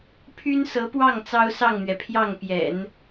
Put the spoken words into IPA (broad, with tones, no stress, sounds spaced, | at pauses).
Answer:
pʰ y˥ n s ɤ˧˥ p w ɑ˥˩ ŋ t͡s ɑ˥ ʊ̯ s ɑ˥˩ ŋ n̪ ɥ ɛ˩ pʰ j ɑ˥˩ ŋ p j ɛ̰˨˩˦ n